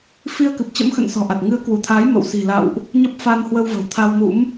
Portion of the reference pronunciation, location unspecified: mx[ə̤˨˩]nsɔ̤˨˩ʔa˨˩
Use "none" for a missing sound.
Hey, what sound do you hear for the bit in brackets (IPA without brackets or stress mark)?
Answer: ə̰˧˨